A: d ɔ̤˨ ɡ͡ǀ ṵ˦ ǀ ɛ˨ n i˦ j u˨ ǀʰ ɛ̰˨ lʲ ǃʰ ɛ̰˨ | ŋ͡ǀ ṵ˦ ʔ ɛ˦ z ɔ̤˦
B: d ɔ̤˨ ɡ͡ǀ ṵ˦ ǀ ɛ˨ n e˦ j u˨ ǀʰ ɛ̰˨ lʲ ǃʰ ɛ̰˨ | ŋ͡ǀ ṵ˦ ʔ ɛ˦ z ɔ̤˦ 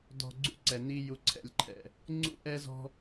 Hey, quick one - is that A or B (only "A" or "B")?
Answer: A